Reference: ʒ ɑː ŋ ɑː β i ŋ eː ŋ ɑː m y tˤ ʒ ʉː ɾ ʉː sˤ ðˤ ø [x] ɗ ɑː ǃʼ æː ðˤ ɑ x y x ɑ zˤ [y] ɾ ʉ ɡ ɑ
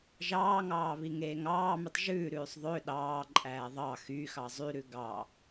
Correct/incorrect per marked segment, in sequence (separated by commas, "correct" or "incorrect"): incorrect, correct